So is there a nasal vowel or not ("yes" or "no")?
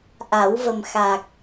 no